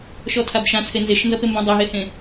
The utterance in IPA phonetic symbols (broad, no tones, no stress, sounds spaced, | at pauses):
ʃ ɔ tʰ a b ʃ ã t͡sʰ e n z e ʃ n z ʌ p e m b õ dˤ o ɦ e h ẽ